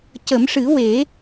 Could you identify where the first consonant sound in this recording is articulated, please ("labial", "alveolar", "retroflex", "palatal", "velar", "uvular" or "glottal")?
palatal